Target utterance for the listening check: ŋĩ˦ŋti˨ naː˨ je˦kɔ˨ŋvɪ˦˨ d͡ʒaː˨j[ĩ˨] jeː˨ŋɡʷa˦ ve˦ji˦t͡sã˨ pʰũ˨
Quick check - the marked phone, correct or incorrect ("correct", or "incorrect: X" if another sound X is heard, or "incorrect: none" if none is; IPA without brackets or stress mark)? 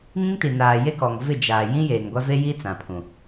incorrect: ĩ˦